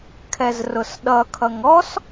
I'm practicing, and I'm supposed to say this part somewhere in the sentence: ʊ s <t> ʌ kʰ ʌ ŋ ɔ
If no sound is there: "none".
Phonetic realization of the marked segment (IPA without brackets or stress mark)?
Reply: ɗ